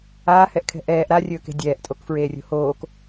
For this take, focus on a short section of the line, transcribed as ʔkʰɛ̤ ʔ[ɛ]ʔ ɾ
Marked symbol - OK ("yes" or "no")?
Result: no